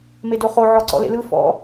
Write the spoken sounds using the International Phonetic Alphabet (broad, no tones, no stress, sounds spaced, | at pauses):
m e d o χ o ʕ ɔ ǀ ɔ̰ l ḛ l ɯ f ɔ̰